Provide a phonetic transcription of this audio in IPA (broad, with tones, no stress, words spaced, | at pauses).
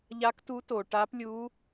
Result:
ʎa˧˥ktu˧˥to˩ ʈa˧˥plʲu˧˥